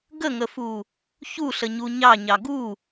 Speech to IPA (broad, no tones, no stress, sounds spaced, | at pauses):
ɡ ə ŋ ə f u | ç u ɬ ə ɲ u ɲ ɑ ɲ ɑ ɡ u